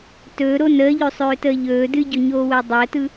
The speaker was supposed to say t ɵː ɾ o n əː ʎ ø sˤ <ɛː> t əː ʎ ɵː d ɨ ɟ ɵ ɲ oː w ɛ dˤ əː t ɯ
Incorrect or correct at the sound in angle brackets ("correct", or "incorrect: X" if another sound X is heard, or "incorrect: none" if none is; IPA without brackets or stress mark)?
incorrect: øː